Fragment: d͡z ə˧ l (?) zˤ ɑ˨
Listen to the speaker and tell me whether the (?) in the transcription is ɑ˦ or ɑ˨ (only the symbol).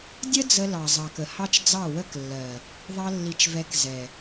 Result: ɑ˨